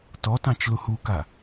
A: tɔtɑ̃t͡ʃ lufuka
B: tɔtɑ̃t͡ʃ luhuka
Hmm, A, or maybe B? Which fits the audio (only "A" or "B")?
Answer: B